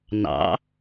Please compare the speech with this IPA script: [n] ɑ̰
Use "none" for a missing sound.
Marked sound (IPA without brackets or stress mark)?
n